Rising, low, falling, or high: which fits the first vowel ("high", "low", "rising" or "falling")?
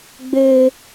high